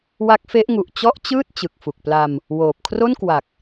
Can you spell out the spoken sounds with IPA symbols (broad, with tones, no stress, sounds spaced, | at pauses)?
w a˦˥ k̚ f e˦˥ ʔ ŋ u˨˩ ʔ t͡ɕ ɔ˥˩ ʔ t͡ɕ ɯː˥˩ t̚ t͡ɕ ɯ˨˩ k̚ f u˨˩ k̚ p l a˧ m | w oː˨˩ p̚ kʰ r o˥˩ n k w a˨˩ k̚